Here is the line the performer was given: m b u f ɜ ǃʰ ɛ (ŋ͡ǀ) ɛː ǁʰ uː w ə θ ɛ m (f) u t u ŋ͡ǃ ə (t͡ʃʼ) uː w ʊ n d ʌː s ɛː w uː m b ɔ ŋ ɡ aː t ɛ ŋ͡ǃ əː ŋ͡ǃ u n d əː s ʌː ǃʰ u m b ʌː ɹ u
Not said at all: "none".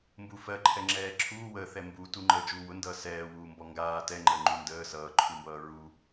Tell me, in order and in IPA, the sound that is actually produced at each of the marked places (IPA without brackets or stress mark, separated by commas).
ŋ͡ǁ, b, d͡ʒ